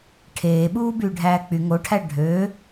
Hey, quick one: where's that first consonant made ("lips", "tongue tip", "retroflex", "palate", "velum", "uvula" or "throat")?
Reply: retroflex